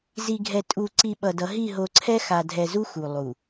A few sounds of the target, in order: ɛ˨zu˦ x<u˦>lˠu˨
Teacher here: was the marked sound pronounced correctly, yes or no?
no